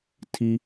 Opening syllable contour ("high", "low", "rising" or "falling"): high